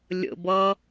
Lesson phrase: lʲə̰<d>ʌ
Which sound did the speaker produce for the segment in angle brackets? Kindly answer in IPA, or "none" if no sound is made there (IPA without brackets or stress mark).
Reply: b